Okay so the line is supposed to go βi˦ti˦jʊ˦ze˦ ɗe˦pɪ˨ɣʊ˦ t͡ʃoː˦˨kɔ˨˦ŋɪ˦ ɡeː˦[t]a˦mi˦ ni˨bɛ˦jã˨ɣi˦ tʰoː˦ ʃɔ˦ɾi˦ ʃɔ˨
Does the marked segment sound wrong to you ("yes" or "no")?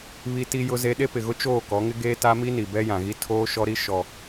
no